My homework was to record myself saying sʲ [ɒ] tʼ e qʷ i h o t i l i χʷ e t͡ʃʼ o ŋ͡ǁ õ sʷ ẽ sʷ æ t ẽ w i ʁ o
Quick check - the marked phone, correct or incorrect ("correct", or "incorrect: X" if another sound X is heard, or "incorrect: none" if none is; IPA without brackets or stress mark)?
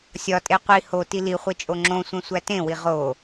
correct